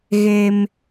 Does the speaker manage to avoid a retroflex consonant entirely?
yes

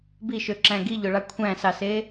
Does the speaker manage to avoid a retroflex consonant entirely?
no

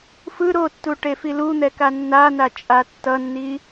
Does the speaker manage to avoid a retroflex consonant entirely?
no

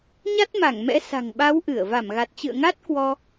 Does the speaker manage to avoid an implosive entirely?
no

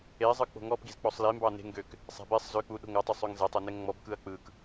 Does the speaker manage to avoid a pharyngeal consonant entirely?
yes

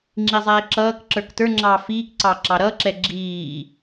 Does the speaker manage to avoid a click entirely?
no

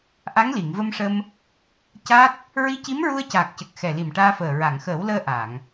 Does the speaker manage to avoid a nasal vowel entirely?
yes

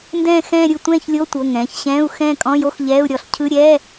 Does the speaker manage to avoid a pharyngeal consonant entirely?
yes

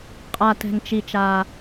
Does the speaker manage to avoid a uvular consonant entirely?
no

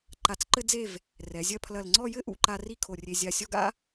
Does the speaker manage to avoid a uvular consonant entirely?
yes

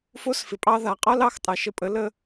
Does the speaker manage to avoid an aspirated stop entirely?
yes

